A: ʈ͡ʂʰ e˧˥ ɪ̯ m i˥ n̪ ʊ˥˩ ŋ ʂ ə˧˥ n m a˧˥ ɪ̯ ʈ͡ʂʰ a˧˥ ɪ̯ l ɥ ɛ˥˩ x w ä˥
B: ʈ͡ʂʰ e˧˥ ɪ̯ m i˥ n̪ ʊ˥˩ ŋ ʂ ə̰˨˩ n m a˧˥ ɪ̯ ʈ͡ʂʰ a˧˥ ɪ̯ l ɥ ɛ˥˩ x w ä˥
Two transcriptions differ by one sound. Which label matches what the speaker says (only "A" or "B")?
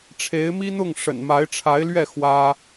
B